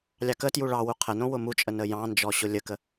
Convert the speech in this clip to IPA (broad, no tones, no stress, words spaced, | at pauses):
lʲɑkətju ɭɑwu qʰənõ wʊmut͡ʃʼə nəjɑ̃nd͡ʒɔ ɕʊlʲəkə